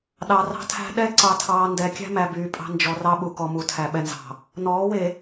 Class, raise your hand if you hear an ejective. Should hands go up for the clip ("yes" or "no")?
yes